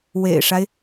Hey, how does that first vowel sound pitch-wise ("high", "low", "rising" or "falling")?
low